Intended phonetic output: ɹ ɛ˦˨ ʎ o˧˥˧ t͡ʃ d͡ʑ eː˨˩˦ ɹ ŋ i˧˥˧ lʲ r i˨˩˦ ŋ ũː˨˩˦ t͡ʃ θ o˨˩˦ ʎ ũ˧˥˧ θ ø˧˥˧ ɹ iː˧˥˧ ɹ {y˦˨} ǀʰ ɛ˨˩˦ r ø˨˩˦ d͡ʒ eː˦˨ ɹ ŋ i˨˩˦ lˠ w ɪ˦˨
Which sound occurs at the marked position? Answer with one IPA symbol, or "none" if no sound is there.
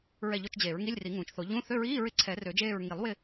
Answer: ɪ˦˨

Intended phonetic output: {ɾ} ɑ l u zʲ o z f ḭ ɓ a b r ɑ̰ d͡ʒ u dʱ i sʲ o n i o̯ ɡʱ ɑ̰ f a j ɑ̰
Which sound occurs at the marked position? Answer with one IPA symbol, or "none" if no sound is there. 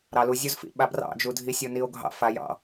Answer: ɾ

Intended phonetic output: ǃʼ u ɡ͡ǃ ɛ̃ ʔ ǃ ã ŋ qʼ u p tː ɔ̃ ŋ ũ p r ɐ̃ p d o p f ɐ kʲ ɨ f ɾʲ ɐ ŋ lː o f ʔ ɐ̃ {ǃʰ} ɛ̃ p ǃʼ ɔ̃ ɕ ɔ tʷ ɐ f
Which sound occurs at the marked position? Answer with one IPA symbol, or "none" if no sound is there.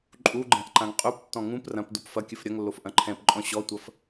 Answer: ǃʰ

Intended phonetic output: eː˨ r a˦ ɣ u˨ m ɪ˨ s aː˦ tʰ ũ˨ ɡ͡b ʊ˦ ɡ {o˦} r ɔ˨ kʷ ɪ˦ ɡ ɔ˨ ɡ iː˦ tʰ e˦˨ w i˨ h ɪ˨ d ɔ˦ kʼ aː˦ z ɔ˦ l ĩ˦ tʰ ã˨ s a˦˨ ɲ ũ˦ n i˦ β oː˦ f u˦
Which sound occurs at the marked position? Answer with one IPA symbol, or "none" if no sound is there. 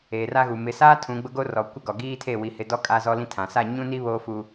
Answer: o˦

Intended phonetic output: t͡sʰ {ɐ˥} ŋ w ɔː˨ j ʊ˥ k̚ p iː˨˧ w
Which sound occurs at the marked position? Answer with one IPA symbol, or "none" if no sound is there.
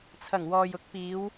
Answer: ɐ˨˩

